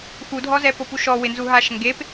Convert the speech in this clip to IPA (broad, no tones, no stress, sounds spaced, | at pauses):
x u dʱ ɔ z ɛ p o p u ʃ ɔ w ɪ n z u ɦ a ʃ ŋ ɡ e p